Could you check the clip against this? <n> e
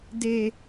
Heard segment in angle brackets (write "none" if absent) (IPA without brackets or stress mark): d